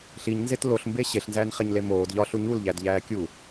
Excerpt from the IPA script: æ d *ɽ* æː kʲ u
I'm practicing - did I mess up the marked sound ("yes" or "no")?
yes